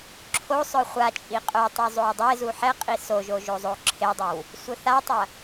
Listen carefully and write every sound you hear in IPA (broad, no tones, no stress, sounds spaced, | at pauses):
ǁʰ o sˤ œ χʷ a t͡ʃʼ i qʼ œ tˤ o zˤ o w dˤ e z u ħ ɛ qʼ i s o ʒ o ʒ o zˤ o ǁʰ e dˤ œ w | sʷ œ θ a tˤ ɐ